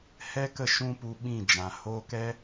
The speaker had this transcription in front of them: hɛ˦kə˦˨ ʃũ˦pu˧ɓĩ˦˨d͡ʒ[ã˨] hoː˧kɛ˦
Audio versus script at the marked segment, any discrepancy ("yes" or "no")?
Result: no